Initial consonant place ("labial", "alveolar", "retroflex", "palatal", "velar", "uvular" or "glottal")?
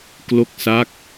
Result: velar